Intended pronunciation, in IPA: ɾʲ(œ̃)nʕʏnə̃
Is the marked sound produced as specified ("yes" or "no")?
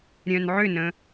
yes